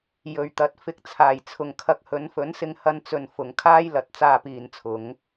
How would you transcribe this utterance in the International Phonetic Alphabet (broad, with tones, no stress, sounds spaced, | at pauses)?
j ɵ˨ ɥ t̪ ɐ˨˥ t̚ f ɪ˨˥ k̚ t͡sʰ aː˨˩ j t͡sʰ ʊ˨ ŋ kʰ ɐ˧ k̚ h ɵ˨˧ n f ɵ˨˥ n s ɪ˧ ŋ h ɐ˧ n t͡s ɵ˨ n f ʊ˨ ŋ kʰ aː˥ j l ɐ˨˥ t̚ t͡s aː˧ p iː˨ n t͡sʰ ʊ˨˧ ŋ